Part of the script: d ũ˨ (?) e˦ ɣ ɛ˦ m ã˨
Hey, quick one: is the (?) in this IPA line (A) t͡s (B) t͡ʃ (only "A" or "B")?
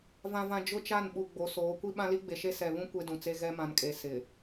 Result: A